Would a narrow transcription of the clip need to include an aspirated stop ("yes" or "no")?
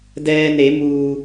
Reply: no